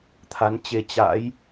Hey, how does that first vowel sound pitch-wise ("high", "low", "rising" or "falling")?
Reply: rising